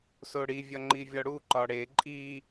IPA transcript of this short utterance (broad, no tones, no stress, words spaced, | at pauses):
soɽivʲɒ ŋ͡ǃivʲɒɽu ǃɒɽe ǃʼi